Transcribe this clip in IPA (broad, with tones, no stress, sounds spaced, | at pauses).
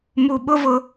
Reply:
m u˨ ɓ ʊ˦ v ʊ˦